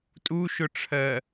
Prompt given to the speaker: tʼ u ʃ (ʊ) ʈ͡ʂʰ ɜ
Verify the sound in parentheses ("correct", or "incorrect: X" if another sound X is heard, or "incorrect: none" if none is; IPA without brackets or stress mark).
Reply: correct